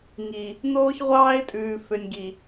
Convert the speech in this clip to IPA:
ŋi˨ | noː˦çʁʷɑː˦ɪ̯tʼʉː˨ fø˨nʲɡi˨

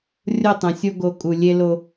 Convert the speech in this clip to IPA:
rʲo˦˨tˤə̃˨sʲo˦ ɡo˨ kʼu˨lʲe˦lo˦

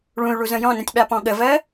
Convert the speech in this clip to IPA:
ɭũy̯ɭuzə̃ jɔ̃nə̃tʲɓapɔ̃ ɠəvɜ

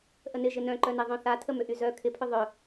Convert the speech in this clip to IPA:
ʔənɪ ʒɪnœ̃ǃœne ðˤœ̃θa tʰəmʏʔyzœ kʰɪpʰʏ ðˤœ

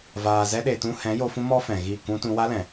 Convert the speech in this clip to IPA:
vaː˨ zɛ˧ɗe˨tũ˧hɛ̃˨˦ jo˧fũ˦mɔ˦fɛ̃˨ ɣi˦˨kũ˦tũ˦ wa˦lɛ̃˨

